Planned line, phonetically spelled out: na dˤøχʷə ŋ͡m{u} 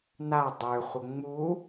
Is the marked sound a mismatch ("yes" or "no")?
no